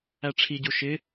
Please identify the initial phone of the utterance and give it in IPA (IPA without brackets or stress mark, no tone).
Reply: æ